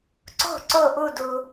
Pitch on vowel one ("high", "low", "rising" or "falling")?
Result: falling